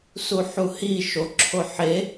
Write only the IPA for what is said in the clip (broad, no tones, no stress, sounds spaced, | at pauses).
s u ħ u h i ʃ o ǁʰ o ħ e